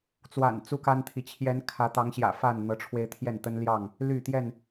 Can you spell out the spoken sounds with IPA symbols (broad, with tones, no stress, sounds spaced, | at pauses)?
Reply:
t͡s w a̰˨˩ n t͡s u˦ k a˦ n t̪ʰ i˨ t͡ɕʰ j ɛ˨˦ n kʰ ä˨˦ t̪ ɑ˨˦ ŋ ɕ j ä̰˨˩ f a˥˨ n n̪ ɤ˨˦ ʈ͡ʂʰ w e˧ ɪ̯ t̪ʰ j ɛ˥˨ n t̪ ə˦ n l j ɑ˥˨ ŋ | l y˥˨ t̪ j ɛ˥˨ n